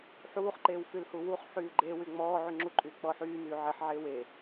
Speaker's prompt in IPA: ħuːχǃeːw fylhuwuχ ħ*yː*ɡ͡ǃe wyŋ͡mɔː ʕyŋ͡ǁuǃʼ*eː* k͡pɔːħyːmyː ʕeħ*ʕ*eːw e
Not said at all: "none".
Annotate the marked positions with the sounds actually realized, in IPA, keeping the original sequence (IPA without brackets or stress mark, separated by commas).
yː, yː, ʕ